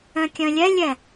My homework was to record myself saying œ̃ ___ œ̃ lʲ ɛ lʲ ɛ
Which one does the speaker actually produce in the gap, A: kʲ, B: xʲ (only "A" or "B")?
A